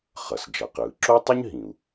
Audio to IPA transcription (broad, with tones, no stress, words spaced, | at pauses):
χʌ˩s d͡ʒʌ˩qɯː˩ ǁo˥tˤu˥ɲɦĩ˩u̯